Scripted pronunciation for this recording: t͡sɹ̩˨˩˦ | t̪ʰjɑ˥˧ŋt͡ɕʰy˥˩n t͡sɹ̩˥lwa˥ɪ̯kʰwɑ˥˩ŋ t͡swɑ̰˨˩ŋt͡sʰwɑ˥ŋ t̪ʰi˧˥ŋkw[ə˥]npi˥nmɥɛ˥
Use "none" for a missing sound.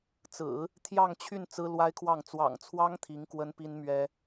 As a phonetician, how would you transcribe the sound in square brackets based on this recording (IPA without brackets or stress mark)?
ə˥